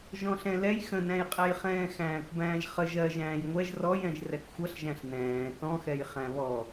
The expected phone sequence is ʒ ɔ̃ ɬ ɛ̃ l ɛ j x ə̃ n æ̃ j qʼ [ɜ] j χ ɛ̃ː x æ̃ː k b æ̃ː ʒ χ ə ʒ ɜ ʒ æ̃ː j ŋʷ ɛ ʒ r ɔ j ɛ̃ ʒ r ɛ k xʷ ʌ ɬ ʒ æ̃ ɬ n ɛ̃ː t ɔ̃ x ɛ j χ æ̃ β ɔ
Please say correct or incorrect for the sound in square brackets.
incorrect